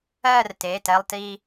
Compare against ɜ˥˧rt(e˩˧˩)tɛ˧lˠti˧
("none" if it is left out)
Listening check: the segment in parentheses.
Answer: e˩˧˩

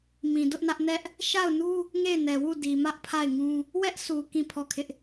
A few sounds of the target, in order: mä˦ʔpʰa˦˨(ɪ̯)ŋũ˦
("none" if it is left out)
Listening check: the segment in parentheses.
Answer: ɪ̯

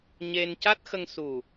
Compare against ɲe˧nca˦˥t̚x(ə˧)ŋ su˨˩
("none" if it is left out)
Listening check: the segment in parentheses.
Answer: ə˧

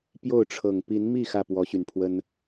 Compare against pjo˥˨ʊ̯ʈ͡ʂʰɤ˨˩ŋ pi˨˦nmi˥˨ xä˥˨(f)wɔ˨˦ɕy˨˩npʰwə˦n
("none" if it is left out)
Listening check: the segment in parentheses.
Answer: p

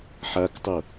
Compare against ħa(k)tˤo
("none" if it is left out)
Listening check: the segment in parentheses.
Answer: k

